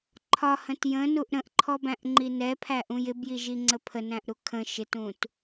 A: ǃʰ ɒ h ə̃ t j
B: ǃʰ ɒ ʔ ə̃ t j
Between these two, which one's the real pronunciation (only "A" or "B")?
A